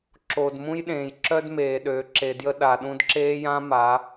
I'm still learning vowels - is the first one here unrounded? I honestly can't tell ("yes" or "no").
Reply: no